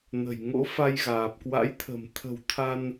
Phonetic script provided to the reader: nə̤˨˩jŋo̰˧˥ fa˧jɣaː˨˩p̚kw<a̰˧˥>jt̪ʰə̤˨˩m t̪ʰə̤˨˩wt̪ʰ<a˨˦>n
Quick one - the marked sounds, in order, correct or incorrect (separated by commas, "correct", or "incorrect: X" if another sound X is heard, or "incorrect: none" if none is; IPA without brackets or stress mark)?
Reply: correct, incorrect: a˧